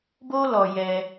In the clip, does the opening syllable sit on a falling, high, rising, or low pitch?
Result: high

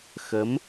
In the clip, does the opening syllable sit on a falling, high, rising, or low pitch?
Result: rising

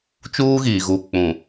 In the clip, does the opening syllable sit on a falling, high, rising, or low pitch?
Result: high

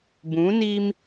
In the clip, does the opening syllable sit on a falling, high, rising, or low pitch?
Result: rising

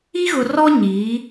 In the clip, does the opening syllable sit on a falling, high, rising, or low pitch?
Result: high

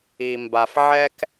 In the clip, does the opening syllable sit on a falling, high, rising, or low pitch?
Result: low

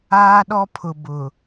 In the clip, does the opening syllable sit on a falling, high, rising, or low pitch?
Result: high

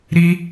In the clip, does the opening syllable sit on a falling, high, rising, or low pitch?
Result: high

